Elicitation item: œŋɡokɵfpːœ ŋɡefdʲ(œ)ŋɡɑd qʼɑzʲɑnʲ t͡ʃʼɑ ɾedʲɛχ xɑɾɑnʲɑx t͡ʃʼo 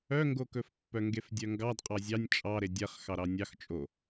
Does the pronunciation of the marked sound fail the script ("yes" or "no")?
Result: no